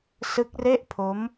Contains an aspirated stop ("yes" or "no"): yes